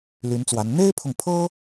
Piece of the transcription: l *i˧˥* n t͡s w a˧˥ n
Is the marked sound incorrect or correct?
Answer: incorrect